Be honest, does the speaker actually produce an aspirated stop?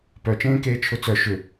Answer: yes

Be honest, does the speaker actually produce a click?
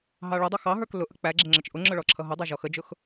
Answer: yes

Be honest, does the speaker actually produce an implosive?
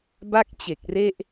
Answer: no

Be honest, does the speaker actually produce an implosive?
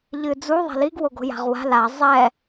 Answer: no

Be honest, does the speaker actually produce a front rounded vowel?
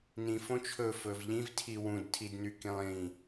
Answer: yes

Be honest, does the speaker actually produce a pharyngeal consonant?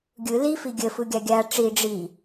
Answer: no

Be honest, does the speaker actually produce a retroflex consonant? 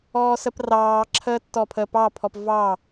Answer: no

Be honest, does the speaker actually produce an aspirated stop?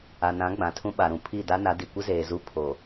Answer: yes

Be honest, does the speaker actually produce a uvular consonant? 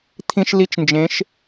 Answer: no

